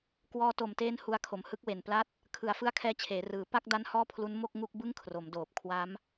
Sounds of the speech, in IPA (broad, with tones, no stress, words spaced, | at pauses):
kwɔː˧to˨˩mteː˦˥n hu˧a̯kʰo˩˦m hɯ˦˥k̚we˨˩npla˥˩t̚ | kʰɯ˨˩a̯fɯ˦˥a̯kʰɛː˧t͡ɕʰeː˩˦ rɯː˩˦ pa˥˩k̚ da˦˥n hɔː˥˩pʰlu˦˥n mo˥˩k̚ ŋu˥˩k̚bɯ˥˩ŋ kʰro˩˦mdoː˨˩p̚ kʰwa˦˥m